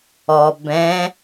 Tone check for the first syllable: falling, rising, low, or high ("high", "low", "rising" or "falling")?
low